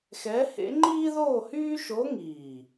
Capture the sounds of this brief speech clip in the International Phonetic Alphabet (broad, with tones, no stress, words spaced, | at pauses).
xɛ˧˥hḛ˧˥ ŋ͡ǃiː˥ðoː˥˧hyː˥ ʃo˧˥ŋiː˨˩